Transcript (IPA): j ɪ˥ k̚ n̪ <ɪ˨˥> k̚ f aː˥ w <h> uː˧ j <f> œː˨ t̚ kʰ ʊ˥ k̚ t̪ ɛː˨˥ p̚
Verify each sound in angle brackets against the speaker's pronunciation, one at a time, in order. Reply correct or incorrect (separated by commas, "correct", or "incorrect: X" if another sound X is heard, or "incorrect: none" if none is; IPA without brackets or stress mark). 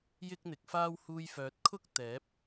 correct, correct, correct